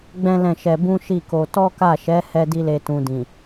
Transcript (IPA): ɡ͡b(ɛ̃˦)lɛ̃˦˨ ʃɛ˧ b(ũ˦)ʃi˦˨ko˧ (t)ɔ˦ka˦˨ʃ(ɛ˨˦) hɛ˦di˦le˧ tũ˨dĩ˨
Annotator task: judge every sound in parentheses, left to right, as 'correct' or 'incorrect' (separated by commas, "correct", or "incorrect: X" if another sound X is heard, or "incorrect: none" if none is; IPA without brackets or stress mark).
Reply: correct, correct, correct, correct